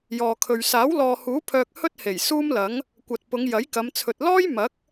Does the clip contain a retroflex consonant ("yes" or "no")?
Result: no